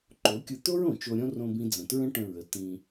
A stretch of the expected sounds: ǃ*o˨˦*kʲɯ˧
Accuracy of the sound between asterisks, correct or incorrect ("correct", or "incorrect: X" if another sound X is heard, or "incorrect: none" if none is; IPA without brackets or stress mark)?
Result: correct